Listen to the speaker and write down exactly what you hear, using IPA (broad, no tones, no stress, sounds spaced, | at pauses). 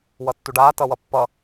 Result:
w ʌ tː u ɖ aː t ʌ w ʌ pː ʌ